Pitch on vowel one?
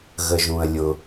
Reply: low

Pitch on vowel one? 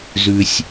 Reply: low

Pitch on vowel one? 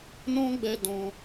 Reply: high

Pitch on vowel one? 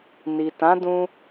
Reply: low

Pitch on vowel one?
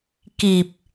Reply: low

